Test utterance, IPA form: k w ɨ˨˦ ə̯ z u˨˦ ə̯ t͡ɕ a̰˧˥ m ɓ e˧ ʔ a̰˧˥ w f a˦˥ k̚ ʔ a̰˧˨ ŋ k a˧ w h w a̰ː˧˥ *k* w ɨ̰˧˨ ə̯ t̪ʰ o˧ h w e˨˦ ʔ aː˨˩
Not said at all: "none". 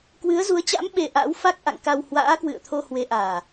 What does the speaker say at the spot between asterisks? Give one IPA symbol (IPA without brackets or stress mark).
k